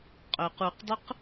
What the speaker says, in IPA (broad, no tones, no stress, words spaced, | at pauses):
qʼœq uqdˤʊq